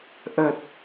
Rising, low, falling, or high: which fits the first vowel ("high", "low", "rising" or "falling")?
low